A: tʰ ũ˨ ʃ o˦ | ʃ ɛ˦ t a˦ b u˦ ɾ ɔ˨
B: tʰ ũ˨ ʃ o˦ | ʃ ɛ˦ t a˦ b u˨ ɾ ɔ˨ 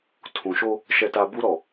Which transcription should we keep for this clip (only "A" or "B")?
A